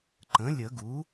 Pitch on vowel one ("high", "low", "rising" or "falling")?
rising